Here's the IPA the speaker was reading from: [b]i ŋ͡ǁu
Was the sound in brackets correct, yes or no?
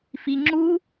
no